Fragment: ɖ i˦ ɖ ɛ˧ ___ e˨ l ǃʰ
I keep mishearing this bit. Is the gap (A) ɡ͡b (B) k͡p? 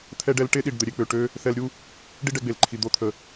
A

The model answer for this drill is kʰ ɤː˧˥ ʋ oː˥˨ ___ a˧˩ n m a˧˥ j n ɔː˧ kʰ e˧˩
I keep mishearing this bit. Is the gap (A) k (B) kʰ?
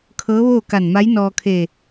A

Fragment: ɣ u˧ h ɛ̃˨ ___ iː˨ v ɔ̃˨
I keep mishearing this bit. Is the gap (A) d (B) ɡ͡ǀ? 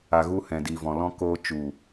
A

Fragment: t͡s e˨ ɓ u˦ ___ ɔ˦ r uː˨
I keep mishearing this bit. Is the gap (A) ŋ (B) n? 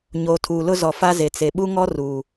A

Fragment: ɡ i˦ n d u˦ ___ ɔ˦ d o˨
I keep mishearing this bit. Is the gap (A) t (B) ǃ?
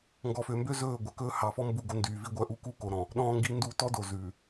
A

